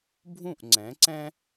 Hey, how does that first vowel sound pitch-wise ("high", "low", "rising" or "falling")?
falling